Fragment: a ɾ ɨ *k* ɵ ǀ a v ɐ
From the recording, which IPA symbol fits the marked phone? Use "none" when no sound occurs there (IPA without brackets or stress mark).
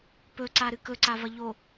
k